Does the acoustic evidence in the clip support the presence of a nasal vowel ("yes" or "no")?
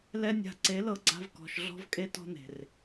no